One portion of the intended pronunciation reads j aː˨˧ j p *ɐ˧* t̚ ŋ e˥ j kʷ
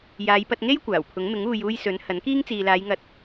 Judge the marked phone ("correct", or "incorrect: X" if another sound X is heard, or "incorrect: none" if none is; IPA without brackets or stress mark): correct